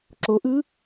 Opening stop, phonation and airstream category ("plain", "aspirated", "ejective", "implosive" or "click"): click